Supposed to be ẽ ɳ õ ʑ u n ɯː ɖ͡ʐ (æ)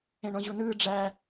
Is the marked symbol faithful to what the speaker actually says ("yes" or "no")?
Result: yes